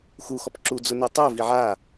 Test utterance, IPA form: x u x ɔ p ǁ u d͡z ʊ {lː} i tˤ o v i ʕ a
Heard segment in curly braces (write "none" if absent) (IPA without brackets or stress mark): n